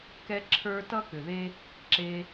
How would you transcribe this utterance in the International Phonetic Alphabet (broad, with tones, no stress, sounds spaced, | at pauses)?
k ɛ˦ ǁʰ ə˞˦ t ʌ˦ k ʏ˨ ð e˦ | ǁ e˧